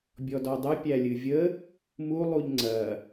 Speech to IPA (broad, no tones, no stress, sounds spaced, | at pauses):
bʲ ɔ d ɔ dˤ ɨ pʲ æ lʲ ɨ vʲ ə | m u lˠ u ʎ ŋ͡ǀ ɐ